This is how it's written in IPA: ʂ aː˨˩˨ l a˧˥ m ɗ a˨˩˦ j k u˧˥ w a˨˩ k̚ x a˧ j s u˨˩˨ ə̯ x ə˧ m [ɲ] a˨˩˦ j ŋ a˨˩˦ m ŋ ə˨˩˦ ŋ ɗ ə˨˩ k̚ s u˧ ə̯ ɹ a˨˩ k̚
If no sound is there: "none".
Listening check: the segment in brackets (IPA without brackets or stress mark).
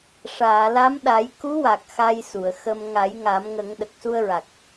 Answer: ŋ